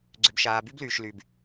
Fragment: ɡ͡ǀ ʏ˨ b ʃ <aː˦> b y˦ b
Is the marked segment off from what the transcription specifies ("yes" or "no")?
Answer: yes